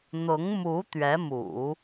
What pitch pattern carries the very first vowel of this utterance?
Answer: rising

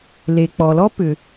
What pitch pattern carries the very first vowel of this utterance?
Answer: low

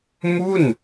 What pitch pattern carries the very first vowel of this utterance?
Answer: falling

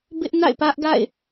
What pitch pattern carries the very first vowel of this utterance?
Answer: high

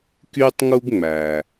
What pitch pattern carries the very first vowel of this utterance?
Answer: high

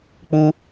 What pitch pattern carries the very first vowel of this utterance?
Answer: high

